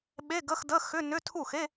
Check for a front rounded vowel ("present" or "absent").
present